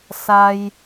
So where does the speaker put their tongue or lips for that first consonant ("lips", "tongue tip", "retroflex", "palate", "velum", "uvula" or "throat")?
tongue tip